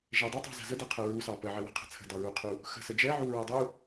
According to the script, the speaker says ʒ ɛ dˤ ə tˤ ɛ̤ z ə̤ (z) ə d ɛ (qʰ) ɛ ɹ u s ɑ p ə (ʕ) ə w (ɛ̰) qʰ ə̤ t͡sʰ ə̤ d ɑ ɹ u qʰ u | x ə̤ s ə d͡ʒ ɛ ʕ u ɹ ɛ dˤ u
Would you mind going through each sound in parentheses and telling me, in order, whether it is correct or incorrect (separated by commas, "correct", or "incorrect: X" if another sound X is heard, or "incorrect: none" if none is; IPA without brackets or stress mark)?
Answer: correct, correct, correct, incorrect: ɛ̤